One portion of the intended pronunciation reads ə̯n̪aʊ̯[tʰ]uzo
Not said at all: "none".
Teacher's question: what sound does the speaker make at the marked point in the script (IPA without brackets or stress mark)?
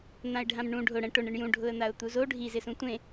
t̪